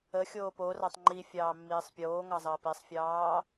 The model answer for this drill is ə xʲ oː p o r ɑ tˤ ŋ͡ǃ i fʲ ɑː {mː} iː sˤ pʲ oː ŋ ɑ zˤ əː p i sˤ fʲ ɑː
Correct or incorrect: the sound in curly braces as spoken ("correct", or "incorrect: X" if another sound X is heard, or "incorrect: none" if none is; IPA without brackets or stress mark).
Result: correct